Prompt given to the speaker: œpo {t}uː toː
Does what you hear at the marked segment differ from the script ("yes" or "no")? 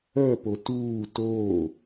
no